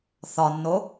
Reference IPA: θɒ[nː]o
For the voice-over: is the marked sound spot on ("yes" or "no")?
yes